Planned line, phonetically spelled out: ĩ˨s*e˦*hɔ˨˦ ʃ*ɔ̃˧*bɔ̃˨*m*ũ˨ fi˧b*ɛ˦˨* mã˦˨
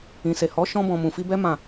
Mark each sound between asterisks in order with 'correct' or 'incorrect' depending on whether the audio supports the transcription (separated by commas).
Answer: incorrect, correct, correct, incorrect